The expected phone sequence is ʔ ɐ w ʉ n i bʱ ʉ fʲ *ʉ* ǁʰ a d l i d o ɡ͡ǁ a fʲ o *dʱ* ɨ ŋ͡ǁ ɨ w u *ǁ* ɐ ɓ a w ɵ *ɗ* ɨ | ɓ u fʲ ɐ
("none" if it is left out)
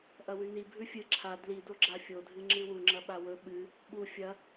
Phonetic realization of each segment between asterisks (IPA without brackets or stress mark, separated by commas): ɨ, dʱ, ŋ͡ǁ, ɓ